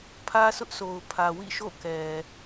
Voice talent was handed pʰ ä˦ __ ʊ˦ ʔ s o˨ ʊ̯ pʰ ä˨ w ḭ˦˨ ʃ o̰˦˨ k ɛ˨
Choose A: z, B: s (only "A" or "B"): B